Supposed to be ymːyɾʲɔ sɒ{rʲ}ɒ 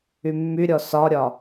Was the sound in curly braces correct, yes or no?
no